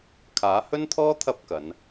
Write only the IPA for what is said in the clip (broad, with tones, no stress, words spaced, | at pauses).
kʰaː˨˥hɵ˥nt̪ʰɔː˥ t̪ʰɐ˥p̚kɐ˨˧n